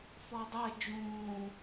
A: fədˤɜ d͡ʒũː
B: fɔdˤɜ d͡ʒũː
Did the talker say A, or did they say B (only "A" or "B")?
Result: B